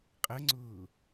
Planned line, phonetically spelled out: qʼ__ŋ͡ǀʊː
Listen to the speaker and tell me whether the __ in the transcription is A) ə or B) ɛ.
A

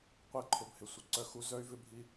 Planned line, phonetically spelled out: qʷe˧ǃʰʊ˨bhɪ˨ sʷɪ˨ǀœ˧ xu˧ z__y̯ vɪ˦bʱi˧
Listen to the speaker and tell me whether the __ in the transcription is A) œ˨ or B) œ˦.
B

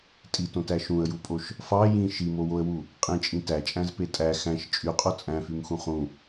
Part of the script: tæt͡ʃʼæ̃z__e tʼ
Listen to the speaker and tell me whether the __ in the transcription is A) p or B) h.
A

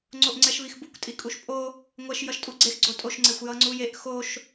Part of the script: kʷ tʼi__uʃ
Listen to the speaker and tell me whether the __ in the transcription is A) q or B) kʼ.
B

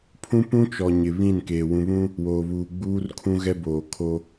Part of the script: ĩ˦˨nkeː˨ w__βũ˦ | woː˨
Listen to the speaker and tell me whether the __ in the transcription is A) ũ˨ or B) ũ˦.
A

